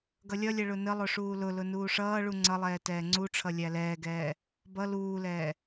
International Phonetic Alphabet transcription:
ɡ ʌ lʲ ʌ lʲ ɛ ɭ ʊ n ə lˠ ʊ ʂ uː l ʊ l ʊ n uː ʂ ʌː ɭ u ŋ͡ǀ ʌ lˠ ɛː t ɛː ŋ͡ǀ u ʈ͡ʂʰ ʌ lʲ æ l ɛː ɡ ɛː | b ʌ l uː l ɛː

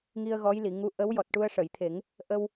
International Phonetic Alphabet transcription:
ŋ i˧ ə̯ ɣ ɔ˧˥ j l i˨˩˨ ŋ u˧˥ ʔ ə˧˥ w j ɔ˨˩ t̚ ʈ u˧ ə̯ ʂ ə˨˩˨ j t̪ʰ e˨˩˦ ŋ | ʔ ə˧ w

